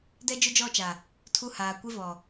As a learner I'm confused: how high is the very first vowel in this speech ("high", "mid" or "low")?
mid